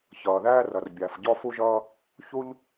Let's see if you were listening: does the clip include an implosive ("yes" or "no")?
no